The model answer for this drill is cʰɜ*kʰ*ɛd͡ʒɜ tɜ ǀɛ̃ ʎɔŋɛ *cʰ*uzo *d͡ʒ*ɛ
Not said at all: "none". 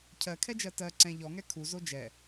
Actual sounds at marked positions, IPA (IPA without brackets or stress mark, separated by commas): kʰ, kʰ, d͡ʒ